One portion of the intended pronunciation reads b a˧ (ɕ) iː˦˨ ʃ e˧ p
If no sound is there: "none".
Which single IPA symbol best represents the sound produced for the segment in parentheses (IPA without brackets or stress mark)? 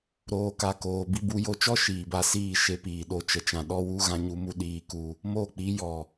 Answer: s